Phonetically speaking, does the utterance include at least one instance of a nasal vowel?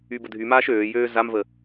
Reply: no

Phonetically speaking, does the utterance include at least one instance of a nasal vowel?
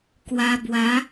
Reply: no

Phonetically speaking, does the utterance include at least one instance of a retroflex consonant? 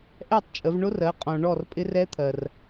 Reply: yes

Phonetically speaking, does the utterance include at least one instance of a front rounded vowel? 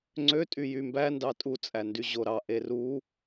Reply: yes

